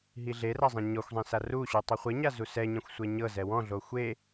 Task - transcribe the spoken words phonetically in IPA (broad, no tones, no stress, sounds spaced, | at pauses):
ɦ i ɮ e r a zˤ ɛ̃ ɲ ɔ xʷ zˤ ɛ̃ s a r u ɕ u tˤ o χʷ e ɲ a z u s ɛ ɲ ɛ̃ xʷ sʷ ɛ ɲ ɤ z ɛ w ɔ̃ ɮ o xʷ e